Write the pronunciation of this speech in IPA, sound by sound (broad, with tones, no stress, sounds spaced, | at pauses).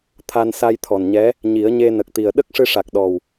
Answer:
t̪ʰ a˧ n s a˧ j t̪ʰ ɔ˨˩ n ɲ ɛ˧˥ | ɲ i˨˩˦ ə̯ ɲ e˧ n ə˨˩ k̚ t̪ i˨˩ ə̯ ɗ ə˦˥ k̚ ʂ ɨ˧ ʂ a˨˩ k̚ ɗ ɔ˨˩ w